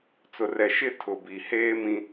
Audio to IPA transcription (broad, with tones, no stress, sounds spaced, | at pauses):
t͡s ʊ˨ r ɛ˨ ʃ ɪ˦˨ tʰ ʊ˨ b i˨ h eː˦ m ĩ˦